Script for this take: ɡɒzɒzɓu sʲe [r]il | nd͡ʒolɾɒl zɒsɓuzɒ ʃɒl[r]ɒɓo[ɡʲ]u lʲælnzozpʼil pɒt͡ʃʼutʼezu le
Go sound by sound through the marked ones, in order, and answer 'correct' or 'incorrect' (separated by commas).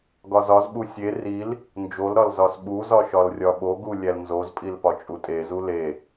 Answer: correct, incorrect, incorrect